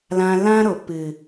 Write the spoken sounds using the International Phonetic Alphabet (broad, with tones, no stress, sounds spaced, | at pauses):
l ã˧ l ã˦ ɾ o˨ p ɨ˨